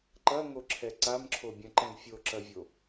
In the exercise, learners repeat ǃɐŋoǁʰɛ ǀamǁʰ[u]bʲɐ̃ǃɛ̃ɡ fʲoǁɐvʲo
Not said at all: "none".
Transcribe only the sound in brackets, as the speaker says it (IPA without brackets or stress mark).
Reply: o